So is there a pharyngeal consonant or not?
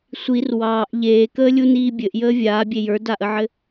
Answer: yes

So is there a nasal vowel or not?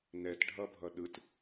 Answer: no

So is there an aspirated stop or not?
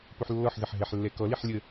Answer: no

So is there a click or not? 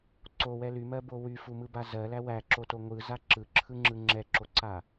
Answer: yes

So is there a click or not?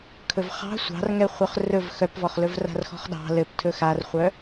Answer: no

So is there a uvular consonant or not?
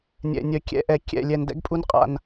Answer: yes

